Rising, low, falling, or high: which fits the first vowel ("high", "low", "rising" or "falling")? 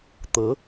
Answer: rising